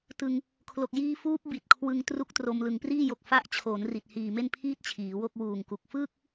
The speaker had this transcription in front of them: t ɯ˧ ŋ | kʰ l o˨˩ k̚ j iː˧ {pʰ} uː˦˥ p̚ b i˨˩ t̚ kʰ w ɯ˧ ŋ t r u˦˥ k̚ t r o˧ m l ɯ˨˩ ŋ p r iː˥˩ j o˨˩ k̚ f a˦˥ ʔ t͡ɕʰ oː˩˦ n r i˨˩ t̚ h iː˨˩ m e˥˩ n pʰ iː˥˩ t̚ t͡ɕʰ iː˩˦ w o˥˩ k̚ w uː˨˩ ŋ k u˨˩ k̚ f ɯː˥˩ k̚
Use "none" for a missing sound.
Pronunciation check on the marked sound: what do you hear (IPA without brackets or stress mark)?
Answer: f